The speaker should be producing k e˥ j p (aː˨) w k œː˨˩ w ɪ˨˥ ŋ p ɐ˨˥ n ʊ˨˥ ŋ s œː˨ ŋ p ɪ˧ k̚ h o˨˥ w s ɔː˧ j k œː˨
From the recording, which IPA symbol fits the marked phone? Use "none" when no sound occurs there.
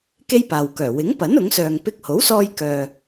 aː˨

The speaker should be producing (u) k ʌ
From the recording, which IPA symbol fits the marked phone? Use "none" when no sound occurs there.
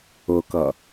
ʊ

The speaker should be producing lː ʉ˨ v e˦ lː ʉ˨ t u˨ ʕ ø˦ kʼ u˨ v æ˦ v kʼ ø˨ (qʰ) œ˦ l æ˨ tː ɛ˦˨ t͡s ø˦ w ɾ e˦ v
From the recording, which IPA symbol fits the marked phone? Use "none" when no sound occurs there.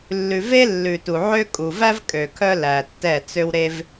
kʰ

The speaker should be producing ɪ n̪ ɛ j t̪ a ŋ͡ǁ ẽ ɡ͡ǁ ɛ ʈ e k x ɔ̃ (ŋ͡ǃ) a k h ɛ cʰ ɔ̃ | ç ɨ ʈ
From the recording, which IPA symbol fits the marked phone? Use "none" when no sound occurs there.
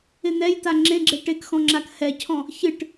ŋ͡ǁ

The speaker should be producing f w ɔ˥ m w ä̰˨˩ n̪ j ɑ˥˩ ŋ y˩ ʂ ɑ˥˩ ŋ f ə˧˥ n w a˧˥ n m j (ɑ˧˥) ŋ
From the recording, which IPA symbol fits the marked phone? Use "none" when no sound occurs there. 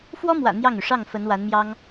ɑ˥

